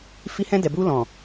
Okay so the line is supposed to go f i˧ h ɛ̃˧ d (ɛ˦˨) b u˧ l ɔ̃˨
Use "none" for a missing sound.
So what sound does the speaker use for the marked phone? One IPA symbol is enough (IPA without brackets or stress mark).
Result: ɛ˨